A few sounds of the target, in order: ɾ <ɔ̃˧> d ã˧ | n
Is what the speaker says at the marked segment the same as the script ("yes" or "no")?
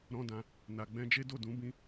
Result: no